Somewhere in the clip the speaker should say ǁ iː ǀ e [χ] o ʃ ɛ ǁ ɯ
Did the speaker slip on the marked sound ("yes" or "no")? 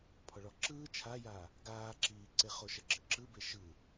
no